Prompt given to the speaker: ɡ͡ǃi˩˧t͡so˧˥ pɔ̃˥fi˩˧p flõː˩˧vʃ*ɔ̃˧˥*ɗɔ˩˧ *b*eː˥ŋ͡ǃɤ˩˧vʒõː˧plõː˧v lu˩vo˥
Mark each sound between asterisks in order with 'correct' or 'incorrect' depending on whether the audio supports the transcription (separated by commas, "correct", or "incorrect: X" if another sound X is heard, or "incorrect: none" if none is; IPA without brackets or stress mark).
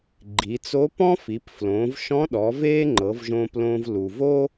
correct, incorrect: v